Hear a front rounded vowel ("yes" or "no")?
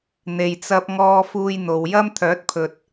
yes